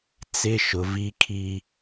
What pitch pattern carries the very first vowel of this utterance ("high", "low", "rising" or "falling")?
high